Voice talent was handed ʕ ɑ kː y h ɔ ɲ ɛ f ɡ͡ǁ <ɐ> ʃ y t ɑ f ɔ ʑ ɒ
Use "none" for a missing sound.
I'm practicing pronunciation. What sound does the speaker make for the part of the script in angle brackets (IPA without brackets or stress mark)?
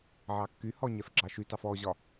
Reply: ɑ